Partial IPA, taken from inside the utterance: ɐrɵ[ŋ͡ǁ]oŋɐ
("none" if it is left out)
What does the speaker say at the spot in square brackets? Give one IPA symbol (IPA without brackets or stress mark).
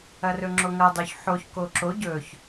ŋ͡ǁ